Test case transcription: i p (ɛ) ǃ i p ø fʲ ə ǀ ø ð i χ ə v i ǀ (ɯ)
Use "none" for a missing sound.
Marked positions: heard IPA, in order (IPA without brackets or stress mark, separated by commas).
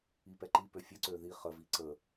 ɛ, ə